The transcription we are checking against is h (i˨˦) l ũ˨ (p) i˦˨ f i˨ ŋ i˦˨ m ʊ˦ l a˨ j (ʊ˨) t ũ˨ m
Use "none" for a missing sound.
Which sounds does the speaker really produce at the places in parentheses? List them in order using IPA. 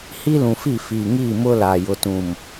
i˦, f, ʊ˨

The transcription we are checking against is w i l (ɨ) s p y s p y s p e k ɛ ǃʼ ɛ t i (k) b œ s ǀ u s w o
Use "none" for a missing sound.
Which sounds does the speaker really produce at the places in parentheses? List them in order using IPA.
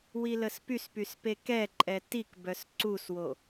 ə, k

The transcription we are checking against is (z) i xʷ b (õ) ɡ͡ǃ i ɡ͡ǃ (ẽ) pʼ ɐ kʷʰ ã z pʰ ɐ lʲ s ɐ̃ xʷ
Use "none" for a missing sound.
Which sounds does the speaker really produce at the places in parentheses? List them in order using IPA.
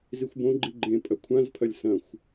z, õ, ẽ

